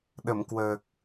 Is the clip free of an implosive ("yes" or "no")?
no